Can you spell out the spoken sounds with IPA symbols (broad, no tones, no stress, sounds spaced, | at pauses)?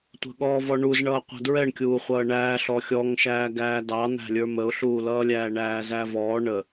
tʷ ə̤ ɠ ɔː v ɔ ɳ u z ɳ ʌː qʷ æ̤ d ɹ ɛ ɳ kʲ uː χʷ ʌː ɳ æː ɬ ɔ xʲ ɔ ŋ ʃ æː ɡ æː d ɑ n̪ æ̤ lʲ ə˞ m ə ʊ̯ ɬ uː l ʌː lʲ æː ɳ æː z æ v ɔː ɳ ə